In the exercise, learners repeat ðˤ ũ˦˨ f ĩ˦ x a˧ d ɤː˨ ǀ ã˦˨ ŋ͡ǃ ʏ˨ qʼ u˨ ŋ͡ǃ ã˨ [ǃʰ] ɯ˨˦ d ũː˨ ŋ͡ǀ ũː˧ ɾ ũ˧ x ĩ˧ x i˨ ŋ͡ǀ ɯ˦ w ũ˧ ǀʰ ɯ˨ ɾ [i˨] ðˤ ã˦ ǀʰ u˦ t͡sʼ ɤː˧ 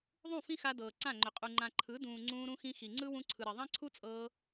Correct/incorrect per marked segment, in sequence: correct, correct

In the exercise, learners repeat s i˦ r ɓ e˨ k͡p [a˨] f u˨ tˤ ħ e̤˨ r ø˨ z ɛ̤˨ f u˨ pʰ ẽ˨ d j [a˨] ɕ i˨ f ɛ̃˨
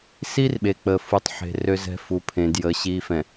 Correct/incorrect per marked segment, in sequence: incorrect: ə˨, incorrect: ə˨

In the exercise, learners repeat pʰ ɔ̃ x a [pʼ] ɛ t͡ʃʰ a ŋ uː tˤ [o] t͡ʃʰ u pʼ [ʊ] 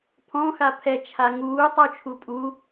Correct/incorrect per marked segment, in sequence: incorrect: pʰ, correct, incorrect: u

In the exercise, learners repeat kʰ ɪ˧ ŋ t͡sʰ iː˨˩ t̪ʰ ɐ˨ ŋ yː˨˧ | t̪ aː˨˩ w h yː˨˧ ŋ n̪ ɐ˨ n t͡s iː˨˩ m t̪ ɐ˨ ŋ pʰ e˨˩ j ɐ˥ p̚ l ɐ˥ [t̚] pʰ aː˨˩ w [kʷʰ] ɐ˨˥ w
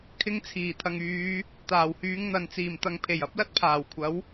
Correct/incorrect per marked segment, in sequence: correct, correct

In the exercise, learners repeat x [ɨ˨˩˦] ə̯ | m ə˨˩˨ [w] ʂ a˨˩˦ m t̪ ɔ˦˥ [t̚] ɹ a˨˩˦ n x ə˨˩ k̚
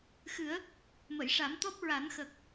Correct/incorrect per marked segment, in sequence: correct, incorrect: j, incorrect: p̚

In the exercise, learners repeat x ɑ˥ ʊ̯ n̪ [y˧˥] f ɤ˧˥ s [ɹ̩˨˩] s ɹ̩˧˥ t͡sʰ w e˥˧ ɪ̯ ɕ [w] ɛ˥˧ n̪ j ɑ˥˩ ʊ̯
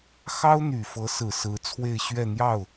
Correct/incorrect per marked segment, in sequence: incorrect: y˨˩, correct, incorrect: ɥ

